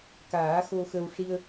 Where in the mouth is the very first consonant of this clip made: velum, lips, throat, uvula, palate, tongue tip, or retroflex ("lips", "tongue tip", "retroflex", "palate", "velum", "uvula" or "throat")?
velum